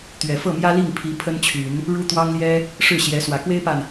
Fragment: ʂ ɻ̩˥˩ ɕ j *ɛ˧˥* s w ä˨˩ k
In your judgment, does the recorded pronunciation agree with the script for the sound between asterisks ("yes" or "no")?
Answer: yes